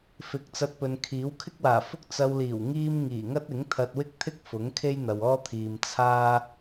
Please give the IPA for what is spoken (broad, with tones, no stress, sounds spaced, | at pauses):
f ɪ˨˥ k̚ t͡s ɐ˧ t̚ p ɵ˨ n kʰ iː˨˥ w kʰ ɪ˥ k̚ w aː˨˩ f ʊ˥ k̚ t͡s ɐ˧ w l iː˨˩ w ŋ iː˥ m ŋ iː˨˩ ŋ ɐ˥ t̚ ɪ˨˥ ŋ t̪ʰ ɐ˧ t̚ w ɪ˥ k̚ t̪ʰ ɪ˥ k̚ f ʊ˨˥ ŋ kʰ e˥ j n̪ ɐ˨ w ɔː˥ t̪ʰ iː˨ m t͡sʰ aː˥